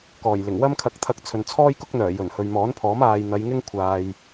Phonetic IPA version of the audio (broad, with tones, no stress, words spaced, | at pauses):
kɔː˨˩jlɪ˨˩ŋ wɐ˥mkʰɐ˧k̚t̪ʰɐ˧k̚ t͡sʰɵ˨nt͡sʰɔː˥jkʊ˥k̚n̪œː˨˩ jɵ˨˩nhɵ˨ɥmɔː˨˥npʰɔː˨˥m aː˨j n̪ɐ˨˧jŋɪ˥ŋ kʷʰaː˨j